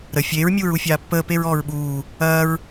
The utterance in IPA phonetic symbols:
ɾə fʲeːɹmʲuːɹ ufʲaːpːəː peɹɔːɹɓuː | ɐːɹ

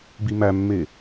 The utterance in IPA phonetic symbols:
bimæmːe

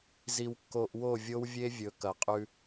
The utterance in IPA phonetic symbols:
zi˧wkːo˧ʔ wo˦˨vʲo˦w vʲe˦vʲɵ˨ kɐ˨qʼʉ˧

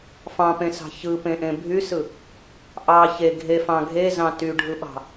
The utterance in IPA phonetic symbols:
fɑ̃pẽsɑ̤ çɯpẽʔẽ bʱysɯ | ʔɑ çe ɡʱefɑ̃ ɡʱezɑ̃ tyɖʱɯɓɑ̤

